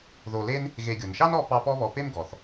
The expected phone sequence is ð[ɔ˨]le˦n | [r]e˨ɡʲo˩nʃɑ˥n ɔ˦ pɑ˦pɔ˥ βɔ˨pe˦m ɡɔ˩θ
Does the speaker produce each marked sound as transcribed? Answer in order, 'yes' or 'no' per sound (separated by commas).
no, no